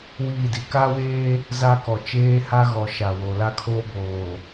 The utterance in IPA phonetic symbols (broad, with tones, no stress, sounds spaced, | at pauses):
w iː˦˨ d i˨ k a˦ w eː˦ | z a˦ k ɔ˨ t͡ʃ eː˦ h a˦ ɣ ɔ˨ ʃ a˨ w o˨ l a˦ kʰ oː˦ b oː˨